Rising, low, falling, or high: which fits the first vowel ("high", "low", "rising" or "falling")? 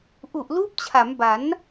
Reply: low